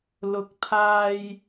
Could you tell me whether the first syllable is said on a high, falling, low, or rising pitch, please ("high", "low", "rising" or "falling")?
low